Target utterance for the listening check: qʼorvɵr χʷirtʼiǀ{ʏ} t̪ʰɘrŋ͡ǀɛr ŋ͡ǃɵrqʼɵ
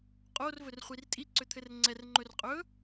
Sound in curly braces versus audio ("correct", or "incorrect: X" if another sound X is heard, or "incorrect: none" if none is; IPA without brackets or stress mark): correct